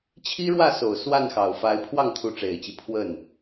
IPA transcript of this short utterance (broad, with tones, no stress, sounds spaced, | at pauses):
t͡ɕʰ i˥ ɻ w ä˥˩ s o˨˩ ʊ̯ s w a˥˩ n x ɑ˨˩ ʊ̯ f a˧˥ ɪ̯ pʰ w ɑ˥˩ ŋ t̪ʰ u˧˥ ʈ͡ʂ e˨˩ ɪ̯ t͡ɕ i˦ pʰ w ə˥˩ n